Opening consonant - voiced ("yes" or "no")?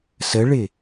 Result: no